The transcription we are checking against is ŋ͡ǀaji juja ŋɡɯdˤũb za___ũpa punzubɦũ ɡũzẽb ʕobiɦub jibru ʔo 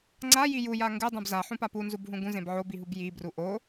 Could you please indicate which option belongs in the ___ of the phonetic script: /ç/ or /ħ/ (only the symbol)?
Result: ħ